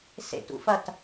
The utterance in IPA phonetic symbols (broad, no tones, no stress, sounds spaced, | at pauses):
s ḛ t ṵ f ɐ t